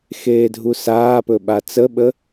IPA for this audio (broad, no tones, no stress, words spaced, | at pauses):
xeːdʱusaːpɵ ɓat͡səɓə